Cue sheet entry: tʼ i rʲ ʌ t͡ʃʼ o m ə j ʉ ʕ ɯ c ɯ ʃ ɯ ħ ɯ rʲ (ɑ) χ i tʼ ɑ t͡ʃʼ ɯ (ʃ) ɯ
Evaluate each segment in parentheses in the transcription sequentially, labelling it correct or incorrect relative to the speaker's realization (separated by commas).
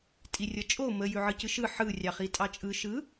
correct, correct